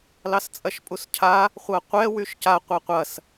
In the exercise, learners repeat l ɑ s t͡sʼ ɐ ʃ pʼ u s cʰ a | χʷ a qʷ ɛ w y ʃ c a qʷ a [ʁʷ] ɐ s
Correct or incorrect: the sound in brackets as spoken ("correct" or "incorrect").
incorrect